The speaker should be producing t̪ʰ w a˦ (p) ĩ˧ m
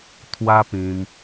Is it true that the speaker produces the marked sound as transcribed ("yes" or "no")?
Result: yes